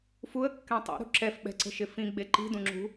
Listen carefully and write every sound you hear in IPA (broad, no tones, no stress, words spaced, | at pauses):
fuə̯kːɛ̃ tˤṵɾṳ ǁɛfɓɛ̤ǀə̤ʃɪ fĩɡ͡be ǃi̤dũŋ͡ǁṳ